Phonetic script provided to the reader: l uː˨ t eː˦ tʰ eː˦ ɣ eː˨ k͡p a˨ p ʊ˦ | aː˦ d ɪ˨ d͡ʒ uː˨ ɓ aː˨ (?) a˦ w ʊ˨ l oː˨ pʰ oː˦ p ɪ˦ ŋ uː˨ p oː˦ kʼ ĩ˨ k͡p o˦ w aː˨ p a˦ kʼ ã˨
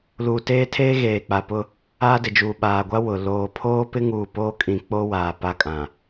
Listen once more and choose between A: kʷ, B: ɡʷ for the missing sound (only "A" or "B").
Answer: B